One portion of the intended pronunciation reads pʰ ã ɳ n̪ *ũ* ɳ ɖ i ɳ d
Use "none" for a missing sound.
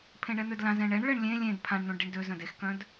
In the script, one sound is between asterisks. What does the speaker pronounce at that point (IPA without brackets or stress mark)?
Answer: ũ